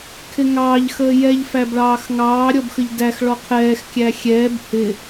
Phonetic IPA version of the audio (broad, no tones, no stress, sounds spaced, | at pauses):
kʰ ɪ ŋ ɑː ʎ x əː j ɛ ʎ f æ b ɭ ɑː x ŋ ɑː ɾʲ ɔ b x ə ʎ d æ x ɭ ɔ qʰ ɛː x kʲ æ xʲ ɛː b h ɪ